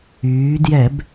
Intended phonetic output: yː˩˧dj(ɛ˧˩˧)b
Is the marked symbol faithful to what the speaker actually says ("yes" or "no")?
yes